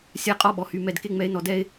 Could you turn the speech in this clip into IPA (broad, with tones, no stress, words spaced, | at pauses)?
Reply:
sʲa˦qʼɔ˦ɓɔ˨hy˧ mɛ˨d ke˦ŋ͡mɛ˧e̯nɔ˧ dɛ˦e̯